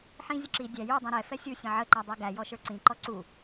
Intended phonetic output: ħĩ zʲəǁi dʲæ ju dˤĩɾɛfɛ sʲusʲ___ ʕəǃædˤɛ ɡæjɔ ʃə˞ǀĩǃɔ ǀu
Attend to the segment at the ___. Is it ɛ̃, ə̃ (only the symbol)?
ə̃